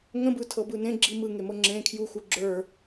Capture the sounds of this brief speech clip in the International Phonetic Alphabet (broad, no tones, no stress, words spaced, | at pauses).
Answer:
ŋə̃bɯtʰɤbɯ nẽɡ͡ǁi mɯŋemɤ ŋ͡ǁẽ kʰjuxu ɡ͡ǁə˞